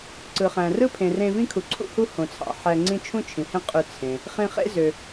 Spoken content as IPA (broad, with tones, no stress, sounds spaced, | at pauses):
ǀ ɯ˩ χ æ̃˩ r ɯ˥ pʰ ẽ˩ r ẽ˧ v ĩ˥ kʰ u˩ ǀʰ ṵ˥ h u˥ h õ˩ t͡sʰ ɑ̰˩ ħ æ˧ ŋ͡ǀ ĩ˥ t͡ʃʰ ũ˥ t͡ʃʰ ĩ˩ h ẽ˥ qʼ ø˧ t͡sʰ ẽ˩ | χ ĩ˧ χ ḛ˥ z ø˩